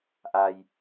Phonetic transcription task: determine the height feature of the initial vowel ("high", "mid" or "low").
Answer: low